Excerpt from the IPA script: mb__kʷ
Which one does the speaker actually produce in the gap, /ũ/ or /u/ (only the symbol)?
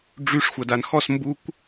u